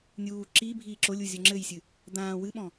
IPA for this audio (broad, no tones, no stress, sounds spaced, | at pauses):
nʲ uː ǁ i bʱ iː ǁ o lʲ u zʲ o ŋ͡ǁ ɘ j sʲ ɨ | d̪ ãː w ɨ ɓ ɔ̃